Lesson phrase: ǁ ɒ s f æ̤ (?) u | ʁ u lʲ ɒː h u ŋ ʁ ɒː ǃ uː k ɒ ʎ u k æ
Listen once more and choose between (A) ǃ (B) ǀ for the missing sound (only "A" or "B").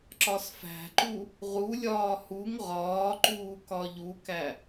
A